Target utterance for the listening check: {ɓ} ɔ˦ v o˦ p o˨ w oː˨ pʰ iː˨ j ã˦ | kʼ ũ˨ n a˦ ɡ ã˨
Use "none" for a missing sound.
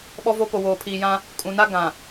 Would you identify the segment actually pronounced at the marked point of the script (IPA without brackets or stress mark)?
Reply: ɓ